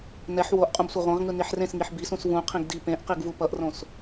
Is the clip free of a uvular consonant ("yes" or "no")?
no